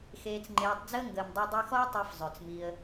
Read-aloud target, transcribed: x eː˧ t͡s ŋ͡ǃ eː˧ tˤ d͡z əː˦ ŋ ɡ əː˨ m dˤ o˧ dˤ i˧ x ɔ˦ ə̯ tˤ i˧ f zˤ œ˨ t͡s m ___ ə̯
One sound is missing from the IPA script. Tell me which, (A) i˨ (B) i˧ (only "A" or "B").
B